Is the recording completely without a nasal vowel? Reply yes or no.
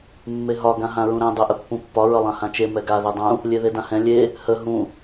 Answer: no